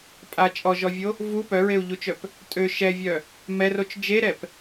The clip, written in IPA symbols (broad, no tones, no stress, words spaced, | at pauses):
pʼa t͡ʃʼɔʒɔvʲo | vu pœɹeu̯ʎut͡ʃœp | tʼø ʃɛvʲœ | mɛrot͡ʃ d͡ʒeɾɛp